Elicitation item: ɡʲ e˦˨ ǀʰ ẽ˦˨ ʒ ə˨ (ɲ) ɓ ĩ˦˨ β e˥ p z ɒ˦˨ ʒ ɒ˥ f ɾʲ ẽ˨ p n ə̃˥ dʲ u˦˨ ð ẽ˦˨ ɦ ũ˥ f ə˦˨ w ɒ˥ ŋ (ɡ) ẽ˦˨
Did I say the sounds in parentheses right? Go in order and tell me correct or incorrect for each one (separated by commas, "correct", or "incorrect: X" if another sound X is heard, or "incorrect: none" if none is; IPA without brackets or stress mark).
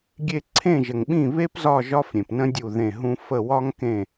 incorrect: ŋ, incorrect: k